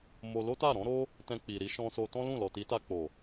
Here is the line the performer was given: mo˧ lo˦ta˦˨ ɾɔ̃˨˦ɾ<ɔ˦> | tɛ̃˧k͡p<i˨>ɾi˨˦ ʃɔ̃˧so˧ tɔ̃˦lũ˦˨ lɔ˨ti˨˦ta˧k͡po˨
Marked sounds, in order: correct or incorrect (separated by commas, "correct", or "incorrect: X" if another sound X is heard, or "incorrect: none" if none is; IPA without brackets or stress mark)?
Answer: incorrect: o˦, correct